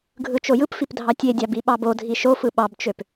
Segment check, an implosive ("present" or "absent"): present